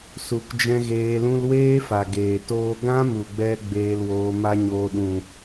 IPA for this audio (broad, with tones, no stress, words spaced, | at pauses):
su˨kd͡ʒɛ̃˧ ɣeː˧lũ˦l weː˦fa˨ ɡeː˨toː˧ ɡã˦mu˨ɡ͡bɛ˧ ɡ͡beː˧lwoː˧ma˦ɲoː˧ ɗũ˨